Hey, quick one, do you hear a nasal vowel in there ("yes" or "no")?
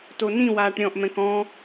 yes